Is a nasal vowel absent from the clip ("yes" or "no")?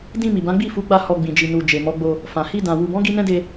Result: no